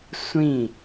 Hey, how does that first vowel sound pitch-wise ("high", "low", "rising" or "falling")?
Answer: falling